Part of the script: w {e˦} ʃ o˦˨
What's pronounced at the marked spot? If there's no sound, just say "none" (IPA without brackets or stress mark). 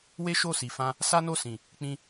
e˦